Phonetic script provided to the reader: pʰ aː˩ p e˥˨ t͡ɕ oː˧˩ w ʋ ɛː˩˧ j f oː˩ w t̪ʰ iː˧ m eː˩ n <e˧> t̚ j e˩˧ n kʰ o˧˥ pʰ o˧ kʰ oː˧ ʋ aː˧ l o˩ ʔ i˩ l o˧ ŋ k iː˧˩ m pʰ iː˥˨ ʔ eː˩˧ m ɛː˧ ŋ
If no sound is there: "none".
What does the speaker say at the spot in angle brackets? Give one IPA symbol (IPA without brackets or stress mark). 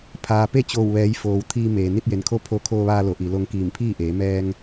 i˧